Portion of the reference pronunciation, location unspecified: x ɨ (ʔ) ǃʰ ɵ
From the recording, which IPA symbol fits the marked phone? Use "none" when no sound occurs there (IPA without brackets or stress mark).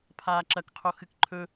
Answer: k